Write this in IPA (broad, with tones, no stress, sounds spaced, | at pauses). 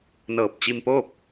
n ɤː˧˩ p̚ t͡ɕ i˧ m p oː˥˨ p̚